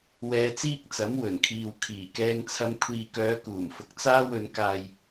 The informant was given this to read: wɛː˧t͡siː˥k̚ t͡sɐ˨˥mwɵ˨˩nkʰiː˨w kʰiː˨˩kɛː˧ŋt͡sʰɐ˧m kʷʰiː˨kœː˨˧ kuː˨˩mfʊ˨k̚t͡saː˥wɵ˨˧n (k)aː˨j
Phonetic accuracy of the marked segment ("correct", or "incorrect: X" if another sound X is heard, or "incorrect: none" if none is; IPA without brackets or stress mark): correct